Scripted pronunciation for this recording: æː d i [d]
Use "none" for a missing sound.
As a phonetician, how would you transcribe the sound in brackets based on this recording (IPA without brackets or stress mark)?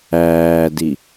none